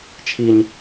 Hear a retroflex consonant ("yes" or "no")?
no